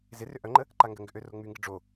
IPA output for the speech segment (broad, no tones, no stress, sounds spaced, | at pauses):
z ɪ r ʏ ʔ œ ŋ͡ǃ ə | ǃ a ŋ ɡ ə ŋ ɡ ʏ ʔ ø r o ŋ͡m y ŋ ɡ ɪ ɖ͡ʐ o